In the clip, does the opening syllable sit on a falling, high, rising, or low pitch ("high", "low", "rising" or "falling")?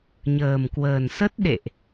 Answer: low